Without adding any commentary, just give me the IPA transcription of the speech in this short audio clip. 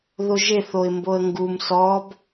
ð o ʒ e θ o ɪ̯ m b o ə̯ ŋ ɡ u m s ɔ b

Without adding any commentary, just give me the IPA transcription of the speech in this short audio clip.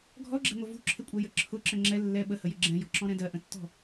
ɡʱ ɔ ɡ͡ǁ ɛ̤ ŋʷ ʌ v ṳ ǁʰ ɪ kʷʼ ɛ j ə ǁʰ ʊ ǁ ə̃ ŋ͡ǁ ɛ lː ɛ ɓ ə h ə j ɪ ɡ͡ǁ ɛ̃ j ɔ̤ ǁ ɔ̃ ɾ ɛ̃ d ɜ ʔ ə̃ tː ɔ̤

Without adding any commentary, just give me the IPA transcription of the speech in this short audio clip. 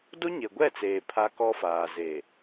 d o˦ ɲ e˨ ɡʷ ɛ˦˨ t͡s eː˨ pʰ a˦ k ɔ˦ f aː˨ z e˨

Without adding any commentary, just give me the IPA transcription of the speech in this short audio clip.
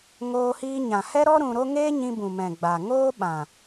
ŋ oː˧ h iː˧ ɲ ã˨ h ɛ˦ ɾ ɔ˦ ɾ ũ˧ ɾ o˦ ŋ eː˦ ɲ ĩ˧ b ũ˨ m ɛ̃˨ ɡ͡b a˨ ŋ oː˦ ɓ ã˨

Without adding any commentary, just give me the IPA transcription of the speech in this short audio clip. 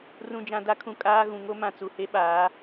r ũ˨ d͡ʒ ã˨ d a˨˦ kʰ ũ˨ kʼ aː˦ ɣ ũ˨ ŋ o˦ m ã˨ t͡s u˨ h e˦ ɓ aː˨˦

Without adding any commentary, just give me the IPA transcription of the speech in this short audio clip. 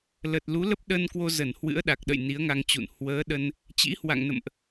l ə˨˩ t̚ l u˨˦ l ə˦˥ p̚ ɗ ə˧ n k w o˧ z ə˧˩ n h w ɨ̰˧˥ ə̯ ɗ a˨˩ k̚ ɗ ə̰˧˨ j n i˨˦ ə̯ ŋ a˧ ŋ t͡ɕ ṵ˧˨ n h w əː˨˦ ɗ ə˧ n | t͡ɕ ḭ˧˥ h w a̰˧˨ ŋ n ə̰˧˨ m ʔ

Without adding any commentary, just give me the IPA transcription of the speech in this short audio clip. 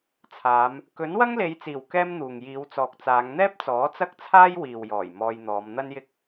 t͡sʰ aː˨˧ m | k ɵ˨˥ n w ɐ˥ ŋ l e˨˧ j t͡s iː˨˩ w k ɛː˥ m n̪ uː˨ ŋ j iː˨˧ w t͡s ɔː˨ k̚ t͡s aː˨˧ ŋ n̪ ɛː˥ p̚ t͡s ɔː˨˥ t͡s ɐ˥ k̚ t͡sʰ aː˥ j w iː˨ w j ɔː˨˩ j m ɔː˧ j n̪ ɔː˨˧ m n̪ ɐ˥ n j ɪ˥ k̚

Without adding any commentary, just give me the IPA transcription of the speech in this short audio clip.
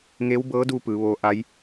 ŋ e˧˥ w b ɤː˧˥ d u˧ p ɯː˩˧ ʋ oː˧˥ ʔ a˧˥ j

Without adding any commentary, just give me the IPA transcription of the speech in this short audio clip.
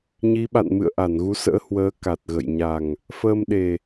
ɲ i˨˦ ɓ a̰˧˨ n m ɨ̰˧˨ ə̯ ʔ a˧˩ n ɣ u˨˦ s ə̰ː˧˥ h w əː˨˦ k a˨˩ t̚ ɣ ə̰˧˨ j ɲ a˨˩ ŋ | f əː˧ m ɗ e˨˩

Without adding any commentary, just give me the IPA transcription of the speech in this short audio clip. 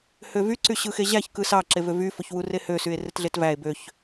h ø v y ǀ y ɕ ɯ x e ʑ æ ç k ɯ s ɑ ǁ e v ø v y f o ç w u r e h ø s y e̯ r e t ɮ e t v æ e̯ b ø ç

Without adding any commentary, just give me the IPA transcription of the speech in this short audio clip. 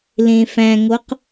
l ẽ f æ̃ ŋ o q

